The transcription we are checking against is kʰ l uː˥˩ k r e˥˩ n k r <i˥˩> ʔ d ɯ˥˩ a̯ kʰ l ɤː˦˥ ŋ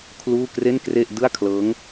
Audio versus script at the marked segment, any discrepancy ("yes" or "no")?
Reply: yes